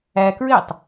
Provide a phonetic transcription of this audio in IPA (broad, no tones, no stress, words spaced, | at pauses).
ækɹɪːtˤ